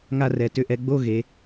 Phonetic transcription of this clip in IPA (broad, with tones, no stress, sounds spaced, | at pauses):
ŋ a˥˧ r ɛ˩˧ t ʏ˧ ʔ ɛ˧ ɡ͡b o˥˧ ɣ e˩˧